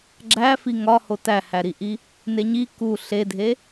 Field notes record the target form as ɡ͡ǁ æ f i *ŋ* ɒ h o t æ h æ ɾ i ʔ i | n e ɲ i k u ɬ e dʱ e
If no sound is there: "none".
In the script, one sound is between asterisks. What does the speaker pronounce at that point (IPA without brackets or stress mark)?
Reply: ŋ